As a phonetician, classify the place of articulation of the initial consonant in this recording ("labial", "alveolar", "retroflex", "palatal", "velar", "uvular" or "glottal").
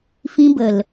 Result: labial